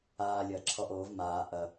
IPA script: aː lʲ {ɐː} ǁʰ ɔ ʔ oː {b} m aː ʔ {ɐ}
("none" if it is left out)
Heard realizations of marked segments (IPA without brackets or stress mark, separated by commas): ɐː, v, ɐ